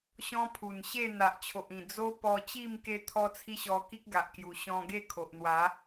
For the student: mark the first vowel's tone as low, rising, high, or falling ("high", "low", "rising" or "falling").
high